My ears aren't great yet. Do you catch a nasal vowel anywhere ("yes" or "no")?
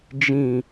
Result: yes